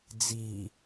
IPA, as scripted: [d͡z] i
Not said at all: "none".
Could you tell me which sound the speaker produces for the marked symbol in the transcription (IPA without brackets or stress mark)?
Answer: d͡z